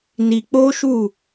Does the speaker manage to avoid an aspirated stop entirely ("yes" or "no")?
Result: yes